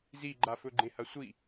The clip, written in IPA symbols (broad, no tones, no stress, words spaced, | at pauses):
ziɡ͡ǃafɵ ɡ͡ǃẽhɐsʷi